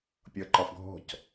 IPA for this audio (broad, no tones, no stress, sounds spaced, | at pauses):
pʲ ʌ ǃ ɒ f ɡʱ ɔ̤ c